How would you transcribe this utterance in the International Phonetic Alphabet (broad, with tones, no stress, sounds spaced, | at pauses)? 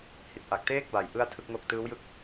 h i˨˩ t̚ ʔ a˨˩ k̚ t eː˥˩ k̚ b a˩˦ j ʔ ɯ˥˩ a̯ tʰ ɯ˥˩ k̚ ŋ o˥˩ k̚ t ɯː˦˥ w j ɯ˦˥ k̚